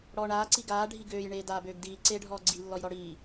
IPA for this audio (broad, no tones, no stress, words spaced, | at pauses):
ɽɔːɳaː ǀiɡaː ɖʱiɡøːj ɳeːdaːbøːɡdiː ǀeːɖʱɔːɡ͡ǀi lːɔjɾɔɽiː